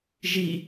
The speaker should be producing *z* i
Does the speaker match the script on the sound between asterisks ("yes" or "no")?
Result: no